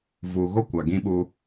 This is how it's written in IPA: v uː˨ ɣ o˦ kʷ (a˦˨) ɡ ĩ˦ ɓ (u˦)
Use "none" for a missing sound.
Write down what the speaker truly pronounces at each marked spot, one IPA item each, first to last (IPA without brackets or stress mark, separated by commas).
a˨, u˦